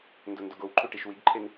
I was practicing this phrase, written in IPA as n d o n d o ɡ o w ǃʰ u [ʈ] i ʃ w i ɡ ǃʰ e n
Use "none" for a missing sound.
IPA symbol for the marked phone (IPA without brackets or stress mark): ʈ